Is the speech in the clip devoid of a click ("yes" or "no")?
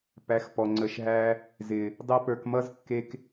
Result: no